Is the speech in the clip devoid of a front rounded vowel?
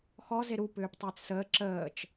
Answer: no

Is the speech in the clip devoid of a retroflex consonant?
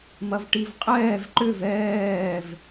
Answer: no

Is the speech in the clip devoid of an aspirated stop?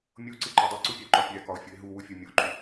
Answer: yes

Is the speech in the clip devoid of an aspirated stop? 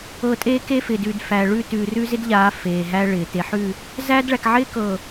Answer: yes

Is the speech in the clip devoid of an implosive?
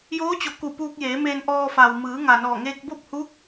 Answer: yes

